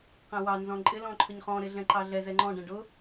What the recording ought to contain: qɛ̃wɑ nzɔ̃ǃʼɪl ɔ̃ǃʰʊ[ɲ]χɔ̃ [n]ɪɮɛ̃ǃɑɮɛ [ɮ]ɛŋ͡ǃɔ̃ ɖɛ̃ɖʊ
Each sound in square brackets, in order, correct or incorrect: correct, incorrect: ɾ, incorrect: z

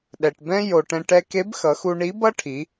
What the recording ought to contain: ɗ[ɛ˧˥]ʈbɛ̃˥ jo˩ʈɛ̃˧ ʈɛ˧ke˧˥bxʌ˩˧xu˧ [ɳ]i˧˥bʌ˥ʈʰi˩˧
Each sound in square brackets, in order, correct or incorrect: incorrect: ɛ˩, correct

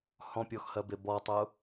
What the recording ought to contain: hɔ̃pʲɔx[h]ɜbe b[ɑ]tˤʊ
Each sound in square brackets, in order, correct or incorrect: correct, incorrect: ɔ

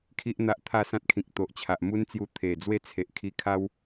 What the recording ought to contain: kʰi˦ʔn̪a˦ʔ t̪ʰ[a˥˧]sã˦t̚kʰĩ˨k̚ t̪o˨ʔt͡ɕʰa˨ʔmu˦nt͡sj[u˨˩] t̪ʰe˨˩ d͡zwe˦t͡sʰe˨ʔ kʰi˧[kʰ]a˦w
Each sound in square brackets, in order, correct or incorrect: correct, incorrect: u˧, correct

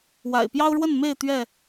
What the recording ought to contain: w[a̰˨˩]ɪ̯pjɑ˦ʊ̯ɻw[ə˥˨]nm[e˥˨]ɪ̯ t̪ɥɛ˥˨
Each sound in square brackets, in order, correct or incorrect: correct, correct, correct

